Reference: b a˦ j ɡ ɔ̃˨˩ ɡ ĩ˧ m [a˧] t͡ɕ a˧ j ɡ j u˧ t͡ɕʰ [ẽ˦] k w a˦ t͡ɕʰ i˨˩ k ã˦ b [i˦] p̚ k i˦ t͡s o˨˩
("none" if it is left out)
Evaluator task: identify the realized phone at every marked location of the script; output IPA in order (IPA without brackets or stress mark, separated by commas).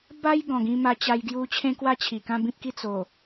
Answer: a˧, ẽ˦, ĩ˦